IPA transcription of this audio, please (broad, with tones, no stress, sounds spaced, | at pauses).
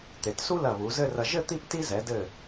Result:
t̪ e˩˧ t s u˥ l ɐ˧˩ β u˩˧ z ɘ˥˧ r ɐ˧ ʒ ɘ˥˧ t̪ i˥ p t i˥ z ɛ˩˧ d ɘ˧˩